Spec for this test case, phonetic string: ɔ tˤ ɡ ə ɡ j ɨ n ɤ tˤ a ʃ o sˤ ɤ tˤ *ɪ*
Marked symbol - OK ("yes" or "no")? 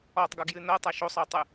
no